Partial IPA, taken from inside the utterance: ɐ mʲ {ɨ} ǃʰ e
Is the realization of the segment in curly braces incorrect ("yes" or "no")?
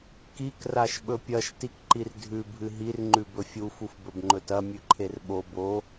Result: yes